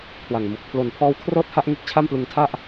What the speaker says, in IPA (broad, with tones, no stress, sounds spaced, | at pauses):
kʰ w a˨˩ ŋ m u˨˩ k̚ pʰ l o˨˩ n pʰ ɔː˦˥ w kʰ r ɤː˥˩ t̚ h a˥˩ ʔ ŋ e˦˥ k̚ t͡ɕʰ a˥˩ m p l ɯ˧ ŋ tʰ a˥˩ ʔ